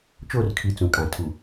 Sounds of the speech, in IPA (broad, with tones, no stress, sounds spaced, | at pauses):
t͡ʃ o˦˨ r kʰ i˨ t͡s ũ˨ kʼ ã˨ tʰ u˨